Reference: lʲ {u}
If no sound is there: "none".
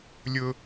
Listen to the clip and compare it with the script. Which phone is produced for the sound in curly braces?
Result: ʊ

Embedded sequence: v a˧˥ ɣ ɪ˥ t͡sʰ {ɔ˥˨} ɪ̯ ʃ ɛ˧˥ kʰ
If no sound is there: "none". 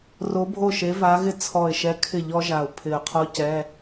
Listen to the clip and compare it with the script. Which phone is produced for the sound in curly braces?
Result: ɔ˧˩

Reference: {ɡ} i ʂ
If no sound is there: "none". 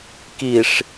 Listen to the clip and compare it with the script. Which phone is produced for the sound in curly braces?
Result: k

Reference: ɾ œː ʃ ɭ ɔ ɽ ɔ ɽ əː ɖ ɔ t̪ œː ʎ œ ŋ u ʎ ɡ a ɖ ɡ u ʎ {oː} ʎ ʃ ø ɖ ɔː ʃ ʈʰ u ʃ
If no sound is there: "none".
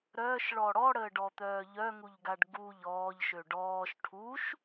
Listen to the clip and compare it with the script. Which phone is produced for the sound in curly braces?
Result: ɔː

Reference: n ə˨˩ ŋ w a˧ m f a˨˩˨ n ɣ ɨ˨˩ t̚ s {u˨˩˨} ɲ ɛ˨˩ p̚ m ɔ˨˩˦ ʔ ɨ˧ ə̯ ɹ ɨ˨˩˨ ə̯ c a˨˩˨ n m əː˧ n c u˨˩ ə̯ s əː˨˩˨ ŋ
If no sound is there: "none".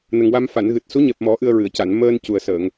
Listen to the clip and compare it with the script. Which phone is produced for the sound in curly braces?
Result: u˧˥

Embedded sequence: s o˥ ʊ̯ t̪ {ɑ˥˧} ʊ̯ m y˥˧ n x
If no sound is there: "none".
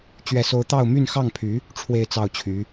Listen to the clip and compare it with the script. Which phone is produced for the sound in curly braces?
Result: ɑ˥˧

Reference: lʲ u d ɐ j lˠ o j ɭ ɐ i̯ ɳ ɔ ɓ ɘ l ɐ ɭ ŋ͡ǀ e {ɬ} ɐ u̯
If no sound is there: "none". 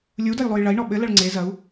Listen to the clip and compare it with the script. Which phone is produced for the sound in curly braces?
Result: z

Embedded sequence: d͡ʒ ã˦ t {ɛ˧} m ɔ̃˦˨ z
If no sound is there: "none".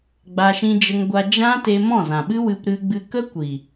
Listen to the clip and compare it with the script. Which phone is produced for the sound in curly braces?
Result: e˧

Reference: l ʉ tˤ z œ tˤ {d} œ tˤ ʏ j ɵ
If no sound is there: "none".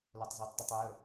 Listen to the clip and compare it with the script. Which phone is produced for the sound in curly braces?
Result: d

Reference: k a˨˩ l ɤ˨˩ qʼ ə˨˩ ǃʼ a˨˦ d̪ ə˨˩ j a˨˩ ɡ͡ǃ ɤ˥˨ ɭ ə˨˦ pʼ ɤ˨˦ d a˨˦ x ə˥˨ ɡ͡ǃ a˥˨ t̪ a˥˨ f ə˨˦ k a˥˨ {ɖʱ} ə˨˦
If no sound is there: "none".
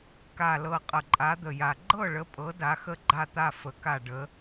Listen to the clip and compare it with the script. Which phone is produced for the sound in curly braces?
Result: ɖ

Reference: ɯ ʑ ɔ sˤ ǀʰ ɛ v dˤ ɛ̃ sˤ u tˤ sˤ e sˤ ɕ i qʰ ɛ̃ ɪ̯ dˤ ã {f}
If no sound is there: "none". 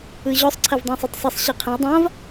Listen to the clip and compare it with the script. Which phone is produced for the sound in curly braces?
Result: v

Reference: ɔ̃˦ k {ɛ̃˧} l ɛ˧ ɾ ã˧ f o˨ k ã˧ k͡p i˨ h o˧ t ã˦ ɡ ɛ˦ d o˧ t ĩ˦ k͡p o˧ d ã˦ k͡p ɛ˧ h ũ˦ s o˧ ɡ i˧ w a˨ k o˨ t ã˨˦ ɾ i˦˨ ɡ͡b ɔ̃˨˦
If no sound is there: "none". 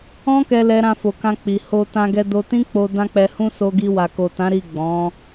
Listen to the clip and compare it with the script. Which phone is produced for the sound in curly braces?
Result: ɛ˧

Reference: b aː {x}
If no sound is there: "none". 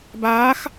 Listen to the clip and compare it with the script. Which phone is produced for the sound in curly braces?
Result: x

